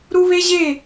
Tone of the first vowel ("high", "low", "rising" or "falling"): high